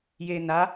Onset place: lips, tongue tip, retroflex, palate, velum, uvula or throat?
palate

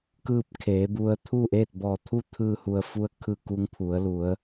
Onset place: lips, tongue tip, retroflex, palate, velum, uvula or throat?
velum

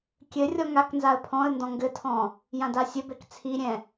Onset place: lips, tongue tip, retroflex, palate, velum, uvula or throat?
velum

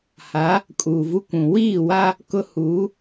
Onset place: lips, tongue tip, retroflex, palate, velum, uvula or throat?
throat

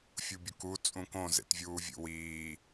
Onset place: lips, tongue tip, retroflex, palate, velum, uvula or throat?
lips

